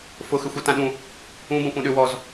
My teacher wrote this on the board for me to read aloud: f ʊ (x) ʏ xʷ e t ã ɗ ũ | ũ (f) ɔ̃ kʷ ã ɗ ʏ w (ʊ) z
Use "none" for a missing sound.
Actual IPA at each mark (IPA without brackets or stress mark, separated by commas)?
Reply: x, b, ɔ